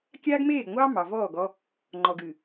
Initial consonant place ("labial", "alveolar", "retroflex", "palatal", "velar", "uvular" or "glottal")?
velar